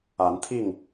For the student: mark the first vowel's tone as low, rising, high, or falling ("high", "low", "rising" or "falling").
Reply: rising